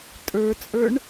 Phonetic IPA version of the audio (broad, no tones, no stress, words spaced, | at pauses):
tʼə˞t͡sʼə˞ɳ